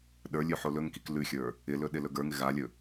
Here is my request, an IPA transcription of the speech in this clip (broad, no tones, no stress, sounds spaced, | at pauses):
ɗ ə˞ lʲ ʉ ħ o l ɵ ŋ k i k l ʉ xʲ ə˞ | ɪ l ɵ ɗ ɪ l ɵ ɡ ə˞ ŋ ɪ ɣ a lʲ ɵ